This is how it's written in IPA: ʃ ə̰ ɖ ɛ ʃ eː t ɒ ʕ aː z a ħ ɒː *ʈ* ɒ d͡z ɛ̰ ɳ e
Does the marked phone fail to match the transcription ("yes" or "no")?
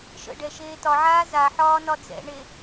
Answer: yes